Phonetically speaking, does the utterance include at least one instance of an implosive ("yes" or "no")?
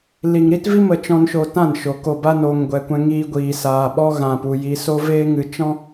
yes